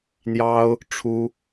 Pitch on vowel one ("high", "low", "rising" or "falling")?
high